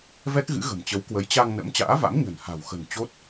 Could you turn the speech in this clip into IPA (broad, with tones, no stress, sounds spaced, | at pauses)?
v ɛ˦˥ k̚ ɣ ɨ̰˧˥ ɣ ə̤˨˩ m t͡ɕ ə˨˦ w k w ə˨˦ j t͡ɕ a˧ ŋ n ə̰˧˥ m t͡ɕ a̰ː˧˥ v a̰˧˥ m ɲ ə̤˨˩ n h a̤˨˩ w x ə̤˨˩ n t͡ɕ o˦˥ t̚